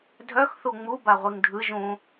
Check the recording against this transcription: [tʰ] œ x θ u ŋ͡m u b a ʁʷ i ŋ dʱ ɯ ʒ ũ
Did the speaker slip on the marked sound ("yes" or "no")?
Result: yes